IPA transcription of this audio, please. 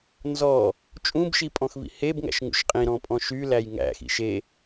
n z ɔ | t͡ʃʼ ũ b ʃ i pʼ ɔ̃ x v ḭ h e b ŋ æ̰ ʃ ŋ ṵ ʃ qʼ ĩ ɾ ɔ̃ pʼ ɔ̃ ʃ y l æ j ŋ æ̰ x ḭ ʃ e

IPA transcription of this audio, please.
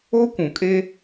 o˦ kʷ ũ˨ kʼ e˦

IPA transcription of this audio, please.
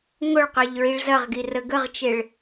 ŋ ʊ ɭ q e ʎ ɹ i ɭ z ɐ ʁ ɡ i r ə ɡ ə ʁ t͡ʃ e ɭ

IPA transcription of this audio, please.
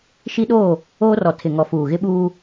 ʃ i˦ ɗ oː˦˨ | oː˦ r ɔ˨ tʰ ɪ˨ ŋ ɔ˨ f uː˨ ɣ ɪ˦ ɓ uː˦

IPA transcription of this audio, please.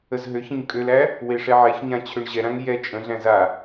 ə z ɦ ø ç ə̃ ɲ kʼ ø l æ | w e ʂ ɛ ʕ ɛ ç ɲ ã t͡ɕʰ ø ɳ ʑ ɛ ɾ ã ŋ j ɛ t͡ʃʼ ə̃ ɮ æ̃ z a

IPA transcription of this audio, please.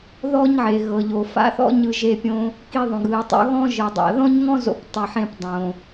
ð ɔ˥ ɲ ʕ e˩ ɣ ɤ˩ ʎ o˩ f a̰˥ θ ɔ̰˥ ɲ ɯ˧ ʒ e˧ pʲ õ˧ | k i˧ ðˤ õ˩ ɡ ɯ˩ i̯ tˤ o̰˧ ɣ ɔ̃˥ ʒ ɯ˩ dˤ a̰˩ ð ɔ̃˥ ɲ ŋ ɔ̃˥ z o̰˧ p tˤ i˩ ħ ẽ˧ p dˤ õ˩

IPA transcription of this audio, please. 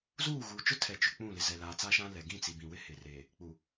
z uː˦˨ ɣ uː˨ t͡ʃ ʊ˦ tʰ ɛ˨ t͡ʃ ʊ˨ k͡p ũ˦˨ l ɪ˨ z ɛ˨ l aː˨ t͡s a˦ ʃ ã˦ l ɛ˨ ɡ ĩ˦˨ t͡s i˨ b ĩ˨ w ɪ˦ h ɪ˨ r eː˨ | k͡p u˨

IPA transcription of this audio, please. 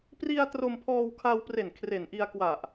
p r i˧ a̯ t r o˧ m pʰ ɔː˧ w kʰ a˧ w p r e˨˩ n kʰ r e˨˩ n ʔ i˧ a̯ k w a˨˩ ʔ

